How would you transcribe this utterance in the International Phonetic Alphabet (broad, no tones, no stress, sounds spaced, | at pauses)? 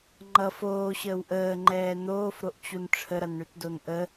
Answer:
ŋ͡ǃ ʌ f oː ɕ əː w ʔ əː ŋ͡ǃ ɛː n̪ oː f ɾ o ʔ t͡ɕ u n ʈ͡ʂʰ ə ɾ ʌ n ɳ ʉ t d o n ʔ ə